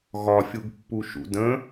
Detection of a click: absent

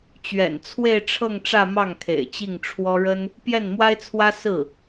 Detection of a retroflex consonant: present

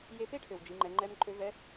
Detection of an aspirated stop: present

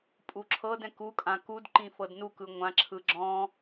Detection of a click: present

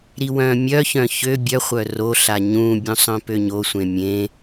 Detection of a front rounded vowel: present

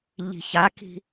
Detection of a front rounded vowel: absent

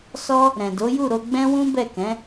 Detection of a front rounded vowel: absent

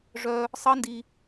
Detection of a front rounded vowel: present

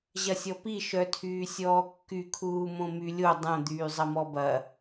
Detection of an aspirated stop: present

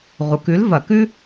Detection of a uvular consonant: present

